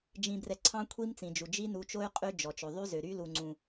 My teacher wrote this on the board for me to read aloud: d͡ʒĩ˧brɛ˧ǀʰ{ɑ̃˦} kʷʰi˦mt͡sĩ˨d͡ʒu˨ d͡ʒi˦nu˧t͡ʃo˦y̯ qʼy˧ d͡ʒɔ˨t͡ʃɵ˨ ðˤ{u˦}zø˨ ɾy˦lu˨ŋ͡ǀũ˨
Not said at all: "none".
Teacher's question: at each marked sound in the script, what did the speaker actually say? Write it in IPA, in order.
ɑ̃˦, y˦

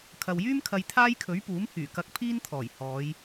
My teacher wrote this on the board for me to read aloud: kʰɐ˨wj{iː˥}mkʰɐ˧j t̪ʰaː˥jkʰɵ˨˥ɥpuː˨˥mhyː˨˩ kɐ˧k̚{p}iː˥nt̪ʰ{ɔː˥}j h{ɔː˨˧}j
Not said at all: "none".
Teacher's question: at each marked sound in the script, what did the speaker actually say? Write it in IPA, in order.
yː˥, pʰ, ɔː˨˩, ɔː˨˧

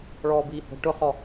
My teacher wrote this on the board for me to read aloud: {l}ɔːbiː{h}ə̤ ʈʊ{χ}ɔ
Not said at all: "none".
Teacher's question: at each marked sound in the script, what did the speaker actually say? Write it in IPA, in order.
ɭ, h, χ

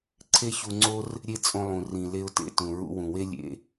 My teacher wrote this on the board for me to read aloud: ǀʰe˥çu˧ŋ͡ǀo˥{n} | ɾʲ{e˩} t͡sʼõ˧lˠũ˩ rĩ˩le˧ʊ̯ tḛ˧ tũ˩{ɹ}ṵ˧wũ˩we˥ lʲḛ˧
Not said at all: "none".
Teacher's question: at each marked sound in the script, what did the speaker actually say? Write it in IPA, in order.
r, e˧, ɹ

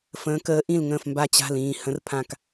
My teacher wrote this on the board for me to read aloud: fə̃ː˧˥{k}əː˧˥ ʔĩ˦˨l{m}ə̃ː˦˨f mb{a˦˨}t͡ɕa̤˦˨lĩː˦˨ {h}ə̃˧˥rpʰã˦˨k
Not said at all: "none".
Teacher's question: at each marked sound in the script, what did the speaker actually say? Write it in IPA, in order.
k, ŋ, a˦˨, h

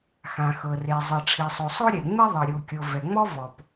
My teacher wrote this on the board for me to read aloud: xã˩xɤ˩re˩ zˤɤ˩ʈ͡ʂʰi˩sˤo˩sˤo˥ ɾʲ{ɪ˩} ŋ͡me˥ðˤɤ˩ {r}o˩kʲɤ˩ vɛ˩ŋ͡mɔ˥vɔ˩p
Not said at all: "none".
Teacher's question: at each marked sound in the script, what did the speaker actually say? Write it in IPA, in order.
ɛ˩, ɾʲ

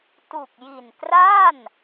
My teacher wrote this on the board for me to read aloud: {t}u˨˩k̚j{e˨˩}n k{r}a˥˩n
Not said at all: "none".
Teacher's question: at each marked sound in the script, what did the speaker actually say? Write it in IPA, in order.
t, i˨˩, r

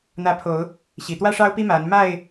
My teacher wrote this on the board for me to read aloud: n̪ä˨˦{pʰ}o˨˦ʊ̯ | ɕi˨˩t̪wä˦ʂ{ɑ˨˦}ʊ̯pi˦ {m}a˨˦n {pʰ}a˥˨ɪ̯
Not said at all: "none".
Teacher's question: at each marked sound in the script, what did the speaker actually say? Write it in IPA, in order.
pʰ, ɑ˦, m, m

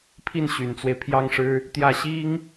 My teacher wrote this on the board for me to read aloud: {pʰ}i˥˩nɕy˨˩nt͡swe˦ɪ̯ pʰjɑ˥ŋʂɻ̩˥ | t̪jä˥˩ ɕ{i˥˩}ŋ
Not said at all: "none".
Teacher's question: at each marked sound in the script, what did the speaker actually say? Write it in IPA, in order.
pʰ, i˥

